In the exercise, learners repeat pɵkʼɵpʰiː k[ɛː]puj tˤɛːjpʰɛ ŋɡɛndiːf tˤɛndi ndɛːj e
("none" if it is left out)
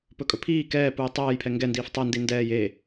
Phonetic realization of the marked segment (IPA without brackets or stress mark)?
ɛː